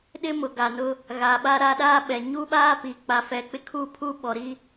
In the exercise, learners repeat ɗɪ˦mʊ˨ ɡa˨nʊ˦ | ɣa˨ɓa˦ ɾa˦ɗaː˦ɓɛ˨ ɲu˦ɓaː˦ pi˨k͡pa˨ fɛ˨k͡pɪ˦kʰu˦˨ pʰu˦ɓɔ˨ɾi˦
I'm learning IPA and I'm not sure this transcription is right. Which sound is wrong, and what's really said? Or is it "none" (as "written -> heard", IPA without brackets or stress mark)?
none